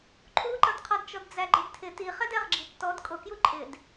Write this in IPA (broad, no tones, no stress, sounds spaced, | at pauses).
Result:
ǃʰ u ǃ ʌ d qʰ ɒ d t͡ʃ ɔ d d͡z æ ɡ͡ǃ ɪ d tʰ ɪ t i χ ɛ d ɛ ʁ ɡ͡ǁ i tː ɔ d kʼ ʊ k j u ǃʼ ɪ d